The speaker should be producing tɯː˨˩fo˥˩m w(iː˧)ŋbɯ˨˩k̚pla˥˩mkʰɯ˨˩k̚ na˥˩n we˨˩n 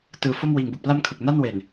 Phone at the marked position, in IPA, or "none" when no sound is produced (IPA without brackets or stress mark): iː˨˩